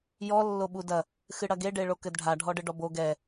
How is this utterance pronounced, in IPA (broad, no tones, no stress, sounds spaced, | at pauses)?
j ɔ lː o ɓ u d ɐ | x ɨ ɽ ɐ ɡ e ɖ e ɭ o k ɘ d ɖʱ a ɖʱ ɔ ɖ ɘ ɖ ɔ b o ɡ ɛ